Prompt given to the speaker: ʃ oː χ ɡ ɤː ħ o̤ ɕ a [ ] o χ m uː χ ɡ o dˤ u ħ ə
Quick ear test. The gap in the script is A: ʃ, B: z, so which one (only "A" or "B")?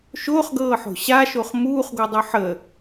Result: A